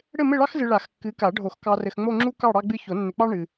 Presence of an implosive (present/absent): absent